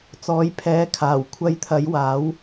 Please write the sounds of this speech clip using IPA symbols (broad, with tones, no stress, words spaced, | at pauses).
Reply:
t͡sɔː˨˥jpʰɛː˨˥ kʰaː˨˩w kʷʰɐ˧jt̪ʰɐ˨˥j waː˨˥w